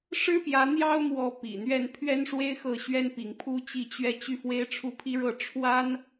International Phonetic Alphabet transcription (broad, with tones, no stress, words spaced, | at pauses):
ʂɻ̩˥pjä˧˥ n̪jɑ˥ʊ̯mwɔ˧˥ pḭ˨˩n̪ɥɛ˥˩n pʰɥɛ˥nʂwe˥ɪ̯xɤ˥˩ ɕɥɛ˥npi˧˥ŋ pʰu˥t͡ɕi˥˧ t͡ɕɥɛ˥˧ t͡ɕy˥˩fwe˥ɪ̯ ʈ͡ʂʰu˥˩pʰi˥ɻɤ˥˩ ʈ͡ʂʰwa˥n